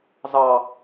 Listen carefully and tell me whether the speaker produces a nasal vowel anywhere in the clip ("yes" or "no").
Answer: no